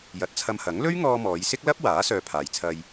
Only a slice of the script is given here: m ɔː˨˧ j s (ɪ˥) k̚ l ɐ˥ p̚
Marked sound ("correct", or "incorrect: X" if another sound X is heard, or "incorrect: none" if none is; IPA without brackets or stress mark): correct